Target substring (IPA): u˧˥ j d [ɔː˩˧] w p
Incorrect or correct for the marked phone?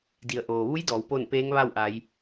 correct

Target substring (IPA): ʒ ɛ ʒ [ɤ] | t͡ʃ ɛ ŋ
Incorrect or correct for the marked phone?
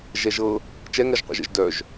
correct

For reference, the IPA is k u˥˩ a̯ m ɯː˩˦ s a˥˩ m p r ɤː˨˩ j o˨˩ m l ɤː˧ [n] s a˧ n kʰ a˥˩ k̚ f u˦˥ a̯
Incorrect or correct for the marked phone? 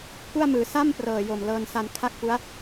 correct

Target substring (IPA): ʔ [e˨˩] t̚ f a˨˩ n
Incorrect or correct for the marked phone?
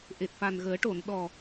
correct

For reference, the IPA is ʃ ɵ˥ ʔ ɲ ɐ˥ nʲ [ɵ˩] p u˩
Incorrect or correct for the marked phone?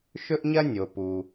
incorrect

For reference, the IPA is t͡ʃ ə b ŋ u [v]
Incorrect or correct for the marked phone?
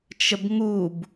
incorrect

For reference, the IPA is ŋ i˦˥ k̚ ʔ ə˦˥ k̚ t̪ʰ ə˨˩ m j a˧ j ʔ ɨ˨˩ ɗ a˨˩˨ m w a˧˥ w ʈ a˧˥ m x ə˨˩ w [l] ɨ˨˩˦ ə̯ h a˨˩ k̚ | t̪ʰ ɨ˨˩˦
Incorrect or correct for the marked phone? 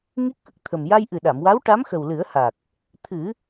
correct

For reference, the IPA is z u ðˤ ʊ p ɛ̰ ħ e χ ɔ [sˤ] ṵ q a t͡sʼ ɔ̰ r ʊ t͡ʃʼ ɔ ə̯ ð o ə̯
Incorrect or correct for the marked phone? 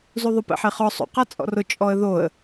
correct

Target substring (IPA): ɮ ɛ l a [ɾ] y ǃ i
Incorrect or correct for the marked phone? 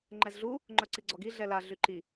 incorrect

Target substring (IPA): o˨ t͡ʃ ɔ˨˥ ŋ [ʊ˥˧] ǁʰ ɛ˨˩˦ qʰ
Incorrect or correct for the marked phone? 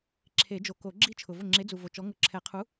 incorrect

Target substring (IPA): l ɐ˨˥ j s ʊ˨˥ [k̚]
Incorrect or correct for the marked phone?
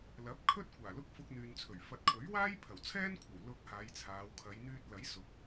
correct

